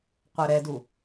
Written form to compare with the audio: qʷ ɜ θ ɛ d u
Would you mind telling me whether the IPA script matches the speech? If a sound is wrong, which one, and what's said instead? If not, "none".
θ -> ɾ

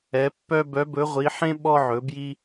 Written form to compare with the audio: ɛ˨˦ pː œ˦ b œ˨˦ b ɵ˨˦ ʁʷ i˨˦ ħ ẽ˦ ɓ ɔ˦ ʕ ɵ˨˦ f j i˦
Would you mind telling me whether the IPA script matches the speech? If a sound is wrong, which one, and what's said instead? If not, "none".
f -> b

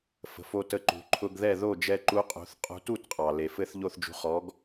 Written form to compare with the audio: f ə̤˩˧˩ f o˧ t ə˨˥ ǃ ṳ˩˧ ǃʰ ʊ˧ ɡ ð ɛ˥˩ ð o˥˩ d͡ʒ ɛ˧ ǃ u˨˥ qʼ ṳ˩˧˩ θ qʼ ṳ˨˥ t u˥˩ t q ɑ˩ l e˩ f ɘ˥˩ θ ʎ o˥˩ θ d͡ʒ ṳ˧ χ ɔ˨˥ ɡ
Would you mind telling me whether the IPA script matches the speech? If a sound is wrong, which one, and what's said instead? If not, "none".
q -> qʼ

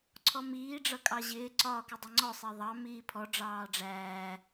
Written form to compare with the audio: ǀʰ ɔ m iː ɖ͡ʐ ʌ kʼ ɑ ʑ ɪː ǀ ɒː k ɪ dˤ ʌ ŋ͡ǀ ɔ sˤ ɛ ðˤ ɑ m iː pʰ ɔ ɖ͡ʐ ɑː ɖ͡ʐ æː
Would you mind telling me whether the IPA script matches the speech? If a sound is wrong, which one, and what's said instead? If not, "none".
none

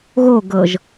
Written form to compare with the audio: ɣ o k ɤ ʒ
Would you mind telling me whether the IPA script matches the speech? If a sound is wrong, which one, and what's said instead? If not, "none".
k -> ɡ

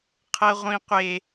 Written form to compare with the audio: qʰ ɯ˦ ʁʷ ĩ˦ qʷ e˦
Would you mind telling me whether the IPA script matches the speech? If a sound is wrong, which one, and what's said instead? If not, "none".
ɯ˦ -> ɤ˦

